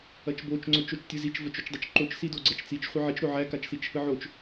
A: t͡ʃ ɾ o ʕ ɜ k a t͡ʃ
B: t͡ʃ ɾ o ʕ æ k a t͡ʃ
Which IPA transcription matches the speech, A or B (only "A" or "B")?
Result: B